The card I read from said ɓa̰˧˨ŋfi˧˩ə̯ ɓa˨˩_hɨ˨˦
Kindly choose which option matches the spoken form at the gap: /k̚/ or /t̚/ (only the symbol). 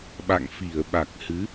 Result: k̚